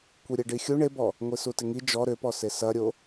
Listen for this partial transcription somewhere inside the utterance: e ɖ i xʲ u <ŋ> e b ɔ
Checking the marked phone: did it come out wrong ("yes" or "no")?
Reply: yes